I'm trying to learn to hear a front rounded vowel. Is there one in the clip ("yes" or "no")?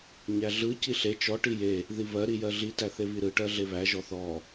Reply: no